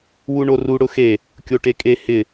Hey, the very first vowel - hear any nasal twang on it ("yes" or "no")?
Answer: no